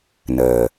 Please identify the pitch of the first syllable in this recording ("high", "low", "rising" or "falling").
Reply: low